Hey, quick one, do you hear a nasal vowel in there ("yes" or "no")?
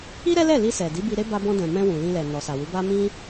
yes